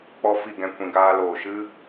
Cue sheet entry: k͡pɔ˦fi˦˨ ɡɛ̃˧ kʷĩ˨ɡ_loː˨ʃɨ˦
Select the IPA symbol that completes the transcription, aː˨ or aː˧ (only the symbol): aː˧